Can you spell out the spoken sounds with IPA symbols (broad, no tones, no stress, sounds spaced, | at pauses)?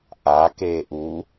ʔ a k eː ʔ u